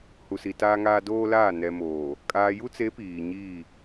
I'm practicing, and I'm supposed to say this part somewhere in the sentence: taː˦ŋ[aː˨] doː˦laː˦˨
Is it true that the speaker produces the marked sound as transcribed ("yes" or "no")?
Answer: no